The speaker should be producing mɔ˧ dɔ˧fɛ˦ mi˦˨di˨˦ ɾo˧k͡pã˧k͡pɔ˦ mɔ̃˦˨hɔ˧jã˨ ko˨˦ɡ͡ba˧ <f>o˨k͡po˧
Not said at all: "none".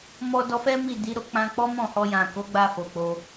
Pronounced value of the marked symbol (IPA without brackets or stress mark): f